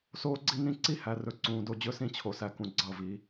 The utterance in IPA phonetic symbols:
soː˦ɡ͡ǀi˦nĩ˦ ǀi˦hæ˨rɵ˨ ǀũː˨do˦˨d͡ʑɵ˦ sĩ˦t͡ɕʰo˨sæ˨kũ˨ ɡ͡ǀʌ˦˨vi˨˦

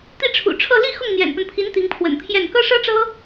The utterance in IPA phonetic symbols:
t̪i˥˩ʈ͡ʂʰṵ˨˩ʈ͡ʂʰɤ˥˧ li˥˧ xʊ˥˩ŋn̪jɛ̰˨˩npə˦npʰi˧˥n t̪i˧˥ŋpʰwə̰˨˩npʰjɛ˥˩n kɤ˥ʂɤ˥ʈ͡ʂɤ˥

